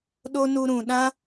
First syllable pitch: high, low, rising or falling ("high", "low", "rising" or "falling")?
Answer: high